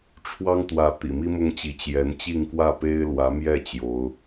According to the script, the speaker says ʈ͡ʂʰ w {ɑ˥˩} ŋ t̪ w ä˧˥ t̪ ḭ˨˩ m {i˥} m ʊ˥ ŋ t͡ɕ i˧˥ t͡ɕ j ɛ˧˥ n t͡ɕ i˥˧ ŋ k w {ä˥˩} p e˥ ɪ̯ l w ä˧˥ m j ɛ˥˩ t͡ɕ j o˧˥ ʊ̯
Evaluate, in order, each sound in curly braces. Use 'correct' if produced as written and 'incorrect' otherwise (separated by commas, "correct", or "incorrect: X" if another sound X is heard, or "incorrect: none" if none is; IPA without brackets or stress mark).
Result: incorrect: ɑ˥, correct, correct